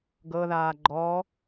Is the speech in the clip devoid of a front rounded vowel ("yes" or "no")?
yes